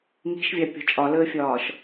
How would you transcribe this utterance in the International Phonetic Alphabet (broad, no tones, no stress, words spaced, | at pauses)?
ŋi̤ʃvʲɑpʲɔ̤ t͡ʃʼɒləːfʲɒːʃ